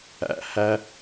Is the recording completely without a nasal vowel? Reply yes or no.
yes